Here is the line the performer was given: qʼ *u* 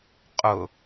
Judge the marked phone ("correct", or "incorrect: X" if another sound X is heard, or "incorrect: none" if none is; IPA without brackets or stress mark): incorrect: ʊ